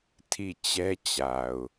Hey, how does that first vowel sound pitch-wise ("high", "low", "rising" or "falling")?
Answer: falling